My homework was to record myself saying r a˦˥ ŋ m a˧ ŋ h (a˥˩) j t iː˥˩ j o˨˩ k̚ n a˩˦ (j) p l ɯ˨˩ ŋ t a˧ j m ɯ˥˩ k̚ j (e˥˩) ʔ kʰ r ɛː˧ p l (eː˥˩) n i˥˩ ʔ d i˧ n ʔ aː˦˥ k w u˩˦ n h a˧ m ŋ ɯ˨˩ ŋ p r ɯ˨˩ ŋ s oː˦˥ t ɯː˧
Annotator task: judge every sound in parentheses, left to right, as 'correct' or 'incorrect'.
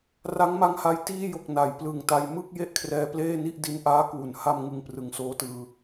incorrect: a˧, correct, correct, correct

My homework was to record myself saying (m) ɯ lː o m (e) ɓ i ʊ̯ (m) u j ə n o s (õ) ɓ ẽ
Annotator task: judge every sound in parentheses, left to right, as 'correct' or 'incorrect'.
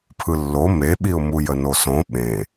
incorrect: pʰ, correct, correct, correct

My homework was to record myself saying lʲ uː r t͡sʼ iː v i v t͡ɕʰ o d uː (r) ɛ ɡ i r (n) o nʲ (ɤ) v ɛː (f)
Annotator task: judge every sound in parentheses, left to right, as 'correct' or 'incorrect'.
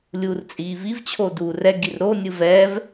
correct, incorrect: ɾ, incorrect: ɯ, incorrect: v

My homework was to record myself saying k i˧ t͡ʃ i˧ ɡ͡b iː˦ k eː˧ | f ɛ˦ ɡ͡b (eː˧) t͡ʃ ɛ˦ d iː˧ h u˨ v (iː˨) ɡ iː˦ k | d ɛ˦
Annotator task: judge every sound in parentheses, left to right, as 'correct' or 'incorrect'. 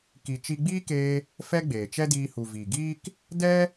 incorrect: eː˨, correct

